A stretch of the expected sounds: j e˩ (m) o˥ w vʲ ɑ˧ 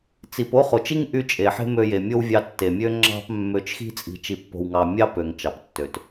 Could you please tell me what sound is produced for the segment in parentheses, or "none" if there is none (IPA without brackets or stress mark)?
mʲ